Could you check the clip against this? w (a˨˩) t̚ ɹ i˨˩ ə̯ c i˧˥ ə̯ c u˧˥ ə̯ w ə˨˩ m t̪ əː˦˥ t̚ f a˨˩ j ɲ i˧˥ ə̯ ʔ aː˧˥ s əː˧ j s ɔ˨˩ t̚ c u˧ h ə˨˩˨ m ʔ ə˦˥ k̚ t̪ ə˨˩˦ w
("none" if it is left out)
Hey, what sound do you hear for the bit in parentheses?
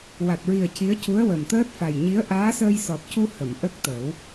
a˨˩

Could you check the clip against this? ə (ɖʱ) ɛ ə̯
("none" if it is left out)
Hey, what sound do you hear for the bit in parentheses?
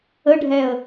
ɖʱ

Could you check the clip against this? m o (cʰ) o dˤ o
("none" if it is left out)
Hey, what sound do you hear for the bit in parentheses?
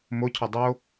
cʰ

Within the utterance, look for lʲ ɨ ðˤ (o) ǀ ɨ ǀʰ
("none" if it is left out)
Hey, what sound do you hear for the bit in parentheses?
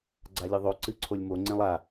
o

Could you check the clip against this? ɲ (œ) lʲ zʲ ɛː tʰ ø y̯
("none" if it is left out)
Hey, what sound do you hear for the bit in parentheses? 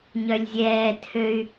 œ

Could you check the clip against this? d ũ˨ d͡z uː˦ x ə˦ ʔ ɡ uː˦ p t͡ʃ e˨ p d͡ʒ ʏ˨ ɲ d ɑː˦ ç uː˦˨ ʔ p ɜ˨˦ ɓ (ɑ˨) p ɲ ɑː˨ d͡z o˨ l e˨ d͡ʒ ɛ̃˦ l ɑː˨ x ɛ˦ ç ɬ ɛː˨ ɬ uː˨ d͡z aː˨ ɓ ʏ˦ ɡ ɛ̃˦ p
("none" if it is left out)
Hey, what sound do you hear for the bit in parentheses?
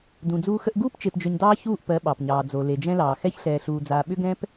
ɑ˨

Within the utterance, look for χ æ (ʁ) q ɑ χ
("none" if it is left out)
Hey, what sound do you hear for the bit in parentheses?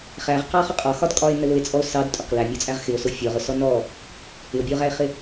ʁ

